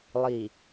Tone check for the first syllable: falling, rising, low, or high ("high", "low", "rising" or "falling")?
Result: low